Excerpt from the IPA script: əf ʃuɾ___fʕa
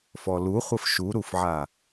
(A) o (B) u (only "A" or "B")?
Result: B